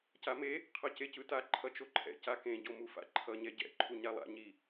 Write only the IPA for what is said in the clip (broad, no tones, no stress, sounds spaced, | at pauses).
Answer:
c a m e | qʰ ʌ c e c ɯ t a ǃʰ ʌ t͡ʃ o ǃʰ ɛ̰ c a k ẽ ɟ o m u f a̰ ǃʰ ʌ ɲ ɛ ɟ ɛ̰ ǃʰ u ɲ a lˠ a̰ ɲ i